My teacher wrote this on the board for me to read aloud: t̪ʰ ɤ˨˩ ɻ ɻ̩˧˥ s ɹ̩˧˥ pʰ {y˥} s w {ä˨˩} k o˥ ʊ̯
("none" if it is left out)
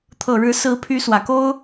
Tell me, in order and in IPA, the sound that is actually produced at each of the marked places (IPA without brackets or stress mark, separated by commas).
y˧˥, ä˨˩